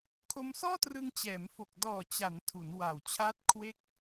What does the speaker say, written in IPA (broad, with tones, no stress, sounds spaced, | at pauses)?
kʰ o˧ m s ɔː˥˩ t r ɯ˧ ŋ t͡ɕ ɛː˩˦ m f o˨˩ k̚ d ɔː˨˩ t͡ɕ a˩˦ n tʰ u˩˦ n w a˨˩ w t͡ɕʰ aː˦˥ t̚ kʰ w e˦˥ k̚